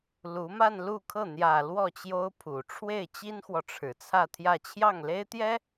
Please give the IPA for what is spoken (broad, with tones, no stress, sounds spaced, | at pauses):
l u˧˥ m a˥˧ n l u˥˧ kʰ ɤ˥˩ n̪ j ä˨˩ l w ɔ˥˩ t͡ɕ j o˥ ʊ̯ pʰ u˨˩ ʈ͡ʂʰ w e˥˩ ɪ̯ t͡ɕ i˥ n x w ɔ˨ ʈ͡ʂʰ ɻ̩˨˩ t͡sʰ ä˥˧ t̪ʰ j ä˥˧ t͡ɕʰ j ɑ˥˩ ŋ l e˥ ɪ̯ t̪ j ɛ˥